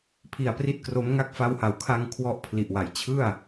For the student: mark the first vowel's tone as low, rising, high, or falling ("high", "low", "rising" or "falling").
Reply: low